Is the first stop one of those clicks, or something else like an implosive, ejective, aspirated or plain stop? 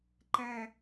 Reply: click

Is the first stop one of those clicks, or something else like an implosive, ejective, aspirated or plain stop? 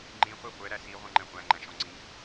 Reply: click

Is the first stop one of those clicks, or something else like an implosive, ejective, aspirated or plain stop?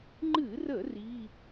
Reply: click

